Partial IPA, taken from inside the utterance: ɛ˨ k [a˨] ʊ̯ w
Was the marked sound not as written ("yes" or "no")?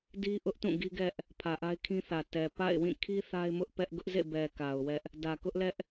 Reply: no